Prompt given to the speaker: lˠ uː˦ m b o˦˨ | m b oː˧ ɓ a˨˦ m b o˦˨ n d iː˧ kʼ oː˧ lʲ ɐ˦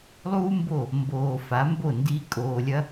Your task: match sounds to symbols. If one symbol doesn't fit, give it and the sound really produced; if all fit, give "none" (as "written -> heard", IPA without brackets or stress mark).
ɓ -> f